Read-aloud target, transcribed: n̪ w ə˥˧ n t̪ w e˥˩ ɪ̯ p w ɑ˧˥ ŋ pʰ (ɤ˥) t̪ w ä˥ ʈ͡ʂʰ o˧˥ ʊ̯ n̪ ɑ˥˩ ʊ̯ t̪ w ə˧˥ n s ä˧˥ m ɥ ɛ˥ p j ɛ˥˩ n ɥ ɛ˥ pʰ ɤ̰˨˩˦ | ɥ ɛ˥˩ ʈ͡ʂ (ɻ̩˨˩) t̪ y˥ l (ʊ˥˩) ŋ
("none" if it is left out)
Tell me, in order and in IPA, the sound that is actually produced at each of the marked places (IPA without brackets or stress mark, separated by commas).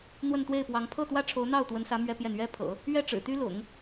ɤ˥˩, ɻ̩˨˩, ʊ̰˨˩˦